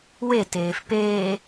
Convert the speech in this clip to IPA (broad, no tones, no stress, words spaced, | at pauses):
weteːf peː